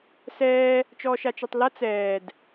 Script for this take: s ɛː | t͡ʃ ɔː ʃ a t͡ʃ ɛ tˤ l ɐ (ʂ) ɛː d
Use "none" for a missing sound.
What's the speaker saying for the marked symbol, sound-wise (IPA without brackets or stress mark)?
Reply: t͡s